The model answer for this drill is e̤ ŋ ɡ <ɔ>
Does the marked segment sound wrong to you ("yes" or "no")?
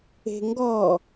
no